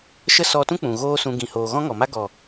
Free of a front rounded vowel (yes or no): yes